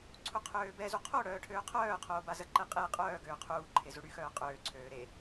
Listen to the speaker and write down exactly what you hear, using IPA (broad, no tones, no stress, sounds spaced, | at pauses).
ǀʰ u qʰ øː b ɛ z u qʰ o ɽ œː ʈʰ øː qʰ œː qʰ oː b a z ə ǃ ɛ qʼ e qʼ œː ɡ øː qʰ uː ǃʰ e z u ɽ y x œː qʼ øː ǀʰ øː ɾ e